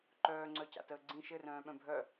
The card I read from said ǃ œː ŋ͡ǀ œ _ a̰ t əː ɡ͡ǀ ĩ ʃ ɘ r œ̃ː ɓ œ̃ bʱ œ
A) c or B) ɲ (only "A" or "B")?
A